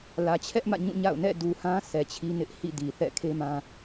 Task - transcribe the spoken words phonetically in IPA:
lä˨t͡ɕʰɛ˦ʔ mä̰˦˨ɲũ˦˨ ɲa̰˦˨ʊ̯nɛ̰˦˨ du˨hã˦ sʰɛ˨t͡ɕʰi˦nɪ˦ʔ hḭ˦˨ di˨ θɛ̰˦˨kʰe˦mã˦

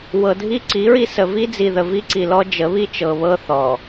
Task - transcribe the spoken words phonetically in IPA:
wɤ˨dʱi˦ǀi˨˦ɹi˦ sə˨vi˦d͡zi˨ðə˨ vi˦ǀi˨lɔ˦ d͡ʒə˨˦βi˦ t͡ʃɤ˨βɤ˦ θɔ˨

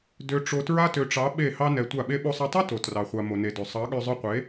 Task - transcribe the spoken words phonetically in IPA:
dø˧ʈ͡ʂo˧tɹa˦ tø˨ʈ͡ʂɑ˨˦ ɓe˦˨hɑ˦ nɛ˧tʷa˦˨ɓe˦ ɓo˧sˤa˧tˤo˦ to˨ trɑ˨χʷa˨ mo˨ne˨dø˨ sˤɑ˨˦ɠø˧zˤœ˧qʷe˨˦

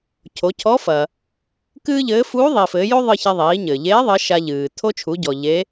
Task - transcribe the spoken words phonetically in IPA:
cʰo˩˧cʰɔ˧˥fɐ˩ | kɨː˥ʎɘː˧˥ fuː˧˥ðˤi˩fɘː˩˧jo˥ ðˤɨ˧çɛ˧ ðˤiː˩˧ɲɘ˩ʎeː˧˥ ðˤɘ˧˥ʃa˧ ʎɨː˩ tʰo˧t͡ʃʰu˩˧ɟɔ˩ ʎe˧˥

